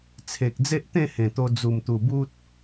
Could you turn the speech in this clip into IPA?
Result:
t͡sʰ e˨ k̚ d͡z e˦ ʔ t̪ ẽ˥˧ h ẽ˨˩ t̪ o˧ d͡z u˨˩ m t̪ u˨˩ b u˦ t̚

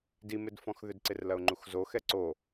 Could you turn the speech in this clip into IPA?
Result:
d i m ɪ d f ɔ̃ x ð ʏ d ǀ ɪ r l ɐ ʊ̯ ŋ͡ǃ u x z o x ɛ ǀ o

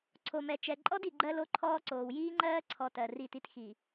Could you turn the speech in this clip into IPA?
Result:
ǀʰ o˨ m ɛ˨ t͡ʃ ɛ˨ ǃʼ ɔ˦ d i˨ ɡ͡ǃ ɜ˦ l o˦ ǃʰ ɔː˦ ǀ oː˨ w j iː˦ ŋ͡ǃ ɜː˦ ǀʰ ɔ˨ t ɜ˨ r i˦˨ t i˦ t x i˨

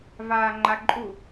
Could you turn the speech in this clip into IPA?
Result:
v aː ŋ͡ǃ a ǃʼ u

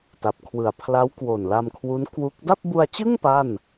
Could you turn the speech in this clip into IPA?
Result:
t a˨˩ p̚ kʰ w ɯ˨˩ a̯ pʰ l a˦˥ w k w o˨˩ n l a˧ m kʰ w u˦˥ n k w u˦˥ k̚ d a˥˩ p̚ b u˧ a̯ t͡ɕ ɯ˥˩ ŋ p a˥˩ n

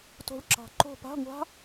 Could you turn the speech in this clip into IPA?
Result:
t o̤˦˥ ɭ ǁ ɑ̤˦˨ ǃ o̤˦˨ p a̤˧˥˧ ŋʷ a̤˦˥

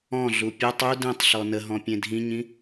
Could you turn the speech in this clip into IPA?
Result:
ɔ̃ ɮ u pʲ œ tˤ u d ẽ tˤ ɬ ɔ n ə ɦ ɔ̃ pʲ ẽ dʱ ĩ ɲ ĩ

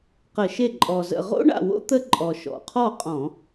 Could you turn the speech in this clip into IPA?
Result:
q ə˧˩˧ ʃ e˥˩ ǃʼ ɔ˨˩ z ə̰˥˩ ʁ o̰˥ ɳ a̰˥˩ w o̰˥ t̪ ə˥ ǃʼ ɔ˨˩ ʃ ɔ̰˨˩ qʰ ɔ˥˩ qʼ ɔ̃˧˩˧

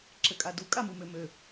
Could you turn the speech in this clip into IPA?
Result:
ǁ ɘ kʼ a d u kʼ a m u m ø m ø

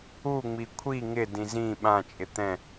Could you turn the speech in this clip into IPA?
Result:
u ŋ͡m i kʷʰ i ŋ ɪ d ĩ z ĩ ɓ ã t͡ʃʼ ɪ t̪ ɛ̃

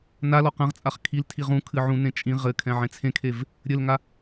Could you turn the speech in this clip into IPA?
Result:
n a l ɔ q ɐ̃ ʁ t͡sʼ a χ kʰ i l tʰ i ʁ ũ kʰ ɨ ʕ ũ n ẽ t͡ʃʼ ĩ ʁ ɘ kʰ ɛ̃ ʕ ẽ t͡sʰ ẽ kʰ e v | ɾʲ ɘ l ŋ a

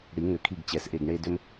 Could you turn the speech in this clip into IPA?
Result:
ɽ i˨˩˦ ŋ ʏ˨˩˦ kʰ i˦˨ ɡ t͡ɕ ɛ˨˦ s ʔ e˦˨ ɡ ɳ e˦ d ʏ˦ m

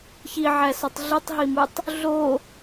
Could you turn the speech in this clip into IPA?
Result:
ç i ʕ æ s ɒ tˤ ɮ i tˤ ɦ i m u tˤ | ɮ o

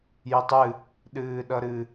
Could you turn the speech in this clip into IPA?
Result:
j ə tˤ ɨ | ɗ ɨː ɗ ʌ ɾ ɨ

